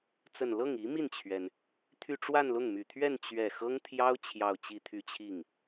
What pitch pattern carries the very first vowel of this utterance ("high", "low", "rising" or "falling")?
falling